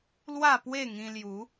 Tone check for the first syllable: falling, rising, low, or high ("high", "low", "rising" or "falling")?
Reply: falling